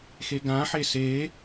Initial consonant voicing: voiceless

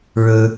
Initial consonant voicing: voiced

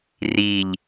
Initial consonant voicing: voiced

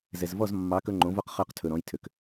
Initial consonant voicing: voiced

